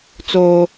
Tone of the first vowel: high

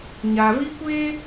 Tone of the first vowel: low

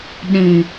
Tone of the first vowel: low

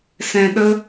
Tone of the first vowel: low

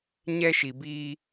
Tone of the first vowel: high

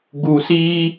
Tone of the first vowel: low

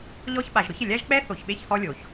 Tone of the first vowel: high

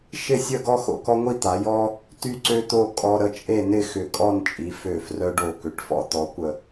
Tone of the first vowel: falling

